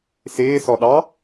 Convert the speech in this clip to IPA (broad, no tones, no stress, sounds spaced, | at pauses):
s ɪː s ɔ ɗ ɑ